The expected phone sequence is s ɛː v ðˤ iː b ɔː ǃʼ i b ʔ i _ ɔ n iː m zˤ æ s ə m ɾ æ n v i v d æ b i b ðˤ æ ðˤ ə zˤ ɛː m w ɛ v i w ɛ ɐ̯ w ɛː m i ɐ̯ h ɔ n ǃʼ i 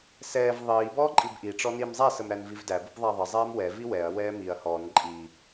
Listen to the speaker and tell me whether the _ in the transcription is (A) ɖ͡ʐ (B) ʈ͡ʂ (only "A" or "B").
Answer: B